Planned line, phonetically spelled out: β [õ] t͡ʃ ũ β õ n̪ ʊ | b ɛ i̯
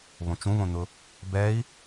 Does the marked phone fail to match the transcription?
no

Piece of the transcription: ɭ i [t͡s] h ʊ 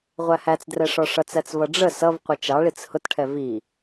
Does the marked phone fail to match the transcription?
no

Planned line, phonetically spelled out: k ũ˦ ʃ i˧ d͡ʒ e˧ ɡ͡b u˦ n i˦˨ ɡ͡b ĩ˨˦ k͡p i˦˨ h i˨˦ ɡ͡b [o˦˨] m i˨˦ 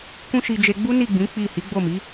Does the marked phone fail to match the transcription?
no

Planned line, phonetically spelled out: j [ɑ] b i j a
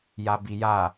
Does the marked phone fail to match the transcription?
yes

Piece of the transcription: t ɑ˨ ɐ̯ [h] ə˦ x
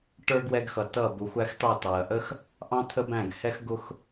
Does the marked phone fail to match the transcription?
yes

